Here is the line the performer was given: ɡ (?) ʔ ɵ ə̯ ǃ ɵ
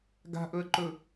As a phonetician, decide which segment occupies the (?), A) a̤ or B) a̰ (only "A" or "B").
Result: A